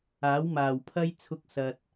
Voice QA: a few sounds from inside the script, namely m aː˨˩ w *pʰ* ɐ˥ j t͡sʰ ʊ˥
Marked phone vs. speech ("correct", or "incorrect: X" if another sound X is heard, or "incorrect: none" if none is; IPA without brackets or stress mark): correct